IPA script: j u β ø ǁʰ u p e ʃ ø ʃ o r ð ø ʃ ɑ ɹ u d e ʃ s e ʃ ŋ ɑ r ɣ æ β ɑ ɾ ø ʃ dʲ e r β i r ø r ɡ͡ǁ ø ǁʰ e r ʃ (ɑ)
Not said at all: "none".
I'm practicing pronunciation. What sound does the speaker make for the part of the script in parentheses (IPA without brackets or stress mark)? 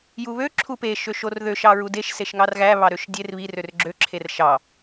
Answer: ɑ